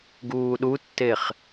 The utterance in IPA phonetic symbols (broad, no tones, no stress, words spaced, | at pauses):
ɡuːɗutːeχ